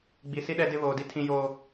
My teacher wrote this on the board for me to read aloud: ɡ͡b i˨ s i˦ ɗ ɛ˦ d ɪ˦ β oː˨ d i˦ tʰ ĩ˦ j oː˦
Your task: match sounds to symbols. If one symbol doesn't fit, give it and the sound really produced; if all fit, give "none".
none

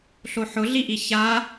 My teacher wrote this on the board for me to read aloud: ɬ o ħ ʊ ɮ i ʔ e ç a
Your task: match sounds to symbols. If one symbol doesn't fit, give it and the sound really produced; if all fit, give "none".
e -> i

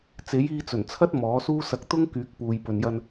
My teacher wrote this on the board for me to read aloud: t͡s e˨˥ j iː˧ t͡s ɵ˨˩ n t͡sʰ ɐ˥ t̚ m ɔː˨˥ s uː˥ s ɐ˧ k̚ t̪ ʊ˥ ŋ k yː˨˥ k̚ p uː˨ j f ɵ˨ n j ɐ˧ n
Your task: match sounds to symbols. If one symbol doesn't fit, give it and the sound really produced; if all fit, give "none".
f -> p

